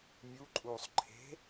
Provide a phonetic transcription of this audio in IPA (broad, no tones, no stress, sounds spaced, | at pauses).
mʲ u ǃʼ u sˤ ǃʰ e̤